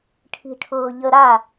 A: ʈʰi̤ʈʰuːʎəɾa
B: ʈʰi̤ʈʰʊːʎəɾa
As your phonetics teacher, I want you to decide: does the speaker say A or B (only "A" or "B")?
B